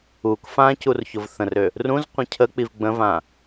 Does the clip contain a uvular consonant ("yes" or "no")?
yes